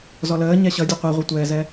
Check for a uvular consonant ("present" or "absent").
present